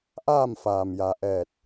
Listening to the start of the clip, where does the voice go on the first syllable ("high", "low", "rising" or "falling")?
falling